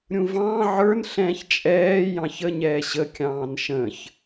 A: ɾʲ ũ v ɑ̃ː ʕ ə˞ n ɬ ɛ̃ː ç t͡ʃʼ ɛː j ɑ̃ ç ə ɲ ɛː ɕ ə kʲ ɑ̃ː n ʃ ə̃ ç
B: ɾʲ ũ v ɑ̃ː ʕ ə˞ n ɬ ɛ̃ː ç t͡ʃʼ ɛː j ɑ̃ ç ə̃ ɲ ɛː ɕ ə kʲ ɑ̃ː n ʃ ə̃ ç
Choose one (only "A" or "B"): A